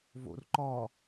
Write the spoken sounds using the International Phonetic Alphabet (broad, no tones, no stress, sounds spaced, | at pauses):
v o̰ r ǃ ɒ